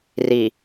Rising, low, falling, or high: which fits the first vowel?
low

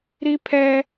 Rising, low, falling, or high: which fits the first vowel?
high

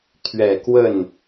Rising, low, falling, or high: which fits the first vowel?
low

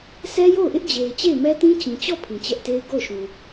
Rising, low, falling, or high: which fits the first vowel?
high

